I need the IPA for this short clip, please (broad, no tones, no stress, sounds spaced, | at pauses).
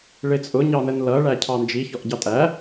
ɭ ɪ t͡sʼ ʊ ɲ ɑ n ə n l ʌ ɭ æ cʰ ɑ n d͡ʒ i ç ɔ ʔ ɟ ɑ tʼ æ